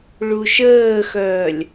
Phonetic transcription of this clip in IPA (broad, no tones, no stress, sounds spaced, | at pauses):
ɭ u ʃ əː x œː lʲ